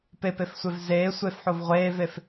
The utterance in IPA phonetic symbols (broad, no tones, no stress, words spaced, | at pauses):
pepefsʷev zeː sʷefħov ʁʷeːvef